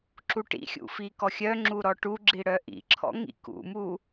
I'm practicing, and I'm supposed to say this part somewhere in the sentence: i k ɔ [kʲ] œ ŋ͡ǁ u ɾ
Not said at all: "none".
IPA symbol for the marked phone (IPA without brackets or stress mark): xʲ